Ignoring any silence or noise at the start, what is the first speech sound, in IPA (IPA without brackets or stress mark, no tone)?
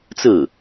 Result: t͡s